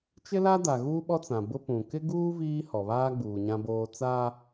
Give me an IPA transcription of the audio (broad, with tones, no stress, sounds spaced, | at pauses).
t͡ʃ ɪ˦ l a˦ d a˨ ɣ uː˦ ɓ ɔ˦ t͡s ã˨ b ʊ˦ p ũ˨ k ɪ˦ ɡ uː˦ v iː˦ h ɔ˨ β aː˦ ɡ͡b uː˨ ɲ ã˦ b oː˦ t͡s a˦